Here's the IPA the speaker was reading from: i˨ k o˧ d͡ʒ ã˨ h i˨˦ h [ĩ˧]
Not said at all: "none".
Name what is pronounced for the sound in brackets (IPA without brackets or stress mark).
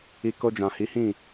ĩ˦˨